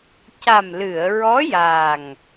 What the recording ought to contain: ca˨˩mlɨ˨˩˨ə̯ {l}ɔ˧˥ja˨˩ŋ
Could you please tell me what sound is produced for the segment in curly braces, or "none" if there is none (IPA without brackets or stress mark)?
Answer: ɹ